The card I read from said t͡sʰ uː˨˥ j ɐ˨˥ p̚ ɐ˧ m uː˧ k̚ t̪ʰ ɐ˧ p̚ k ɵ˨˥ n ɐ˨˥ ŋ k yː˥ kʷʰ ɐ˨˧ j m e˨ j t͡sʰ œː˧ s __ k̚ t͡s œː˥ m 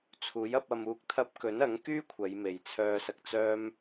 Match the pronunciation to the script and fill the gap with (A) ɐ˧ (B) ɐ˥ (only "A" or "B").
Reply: A